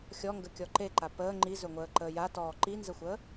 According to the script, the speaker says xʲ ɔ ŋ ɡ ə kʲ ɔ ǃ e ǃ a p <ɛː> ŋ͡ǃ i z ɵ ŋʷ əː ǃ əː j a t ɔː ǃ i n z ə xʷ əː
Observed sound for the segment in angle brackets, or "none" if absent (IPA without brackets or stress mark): əː